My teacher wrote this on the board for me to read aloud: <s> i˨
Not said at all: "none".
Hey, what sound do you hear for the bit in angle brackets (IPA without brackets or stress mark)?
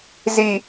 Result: z